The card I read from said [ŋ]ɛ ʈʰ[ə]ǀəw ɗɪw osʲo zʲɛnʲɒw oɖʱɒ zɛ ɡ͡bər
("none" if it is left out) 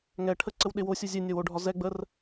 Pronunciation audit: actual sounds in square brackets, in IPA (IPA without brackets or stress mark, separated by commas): ŋ, ə